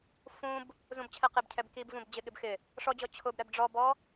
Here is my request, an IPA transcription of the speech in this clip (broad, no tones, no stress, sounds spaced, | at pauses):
f ũ b | z ũ b t͡ɕʰ ɛ q ɪ b cʰ ɛ b k i b v ũ b d͡ʑ ɪ ɠ ɪ b x ɪ | ʂ ɔ d͡ʑ ɔ t͡ɕʰ ʊ b ɾ ɛ b ɖ͡ʐ ɔ b ɔ